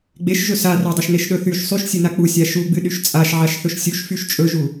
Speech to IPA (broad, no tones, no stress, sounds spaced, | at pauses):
ɡ͡b e ʃ ʒ ɵ s a r ɵ dˤ ɵ ʃ n e ʃ ɗ ɵ θ y ʃ sˤ y ʃ sʲ ɨ n a k͡p u sʲ a ʃ u ɡ͡b ɨ ɗ y ʃ t͡sʼ a ʃ ʕ a ʃ θ ɵ ʃ sʲ u ʃ f y ʃ t͡ʃʼ ɵ ʒ u